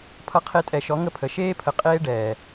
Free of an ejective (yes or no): no